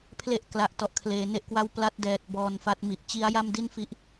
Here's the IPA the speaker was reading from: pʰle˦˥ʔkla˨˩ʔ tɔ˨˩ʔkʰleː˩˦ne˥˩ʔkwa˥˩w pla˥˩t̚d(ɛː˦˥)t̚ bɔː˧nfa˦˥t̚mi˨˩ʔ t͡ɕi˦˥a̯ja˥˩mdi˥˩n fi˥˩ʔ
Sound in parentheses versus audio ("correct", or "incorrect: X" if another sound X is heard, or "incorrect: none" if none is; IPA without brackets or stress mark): incorrect: ɛː˨˩